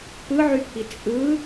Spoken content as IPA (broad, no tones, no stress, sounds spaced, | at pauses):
p ɯ ʕ y pʰ i t͡sʼ ɯ